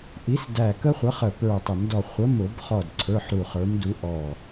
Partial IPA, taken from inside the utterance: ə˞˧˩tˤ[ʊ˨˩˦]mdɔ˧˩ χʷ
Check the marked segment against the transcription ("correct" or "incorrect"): correct